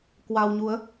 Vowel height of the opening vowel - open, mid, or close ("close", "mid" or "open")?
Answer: open